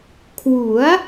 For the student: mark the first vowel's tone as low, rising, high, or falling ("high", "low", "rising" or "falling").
rising